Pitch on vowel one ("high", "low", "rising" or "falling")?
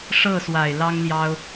falling